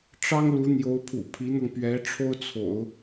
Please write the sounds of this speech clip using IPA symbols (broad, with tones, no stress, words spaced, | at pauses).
ʈ͡ʂɑ˥ŋ lu˧˥ n̪jo˧˥ʊ̯pʰṵ˨˩ pʰi˧˥n̪ɤ˧ŋ pɥɛ˧˥ʈ͡ʂʰo˥ʊ̯ t͡sʰo̰˨˩˦ʊ̯